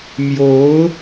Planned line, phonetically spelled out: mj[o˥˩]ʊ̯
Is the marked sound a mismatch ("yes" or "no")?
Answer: yes